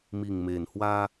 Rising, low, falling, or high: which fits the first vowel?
low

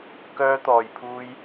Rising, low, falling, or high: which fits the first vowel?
high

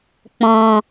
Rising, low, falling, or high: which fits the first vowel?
low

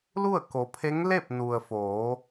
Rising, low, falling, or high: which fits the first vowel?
falling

